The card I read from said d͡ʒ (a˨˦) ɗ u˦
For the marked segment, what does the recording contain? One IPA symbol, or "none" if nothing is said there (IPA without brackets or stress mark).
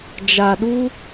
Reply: a˨